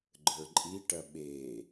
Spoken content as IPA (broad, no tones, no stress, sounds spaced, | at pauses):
ɡ͡ǃ ə˞ ǃʼ i ʈ ɐ ɓ e